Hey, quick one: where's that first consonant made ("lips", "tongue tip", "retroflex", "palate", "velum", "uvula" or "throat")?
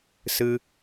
tongue tip